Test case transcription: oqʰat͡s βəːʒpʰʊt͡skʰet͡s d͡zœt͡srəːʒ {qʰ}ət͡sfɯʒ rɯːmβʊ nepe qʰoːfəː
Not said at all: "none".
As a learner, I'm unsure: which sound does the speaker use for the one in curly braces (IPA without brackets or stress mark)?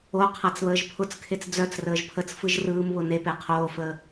pʰ